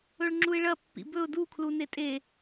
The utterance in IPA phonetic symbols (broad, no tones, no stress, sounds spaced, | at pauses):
ɵ ɭ ŋ͡ǁ u ɪ̯ ɭ ɐ pː ḭ b ɵ ʊ̯ d u kʰ l u n e tʼ e